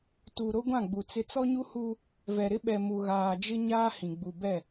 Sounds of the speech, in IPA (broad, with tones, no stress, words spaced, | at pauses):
tu˨ ɾo˦ɡʷã˦˨ɡ͡bu˨ t͡sɪ˦ t͡sɔ˦ɲu˦hu˦ | vɛ˨ɾɪ˦ɓɛ˨ mu˨ɣaː˨d͡ʒɪ˦ ɲaː˦hĩ˨ ɡ͡bu˨bɛ˦˨